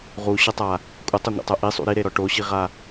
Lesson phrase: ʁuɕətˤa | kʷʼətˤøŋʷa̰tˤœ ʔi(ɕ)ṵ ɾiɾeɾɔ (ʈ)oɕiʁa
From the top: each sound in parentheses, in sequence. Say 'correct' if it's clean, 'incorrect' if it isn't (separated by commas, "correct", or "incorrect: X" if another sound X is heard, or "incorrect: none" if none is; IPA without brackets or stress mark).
incorrect: sˤ, correct